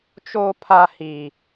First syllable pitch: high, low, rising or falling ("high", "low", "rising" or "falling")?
high